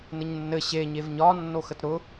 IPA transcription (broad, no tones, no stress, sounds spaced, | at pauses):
n ɘ ɲ nː ɘ ɕ e ɲ e v ɲ ɒ nː o x ə t ɾ ʊ